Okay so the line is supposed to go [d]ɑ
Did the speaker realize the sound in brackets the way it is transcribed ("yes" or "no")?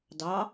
yes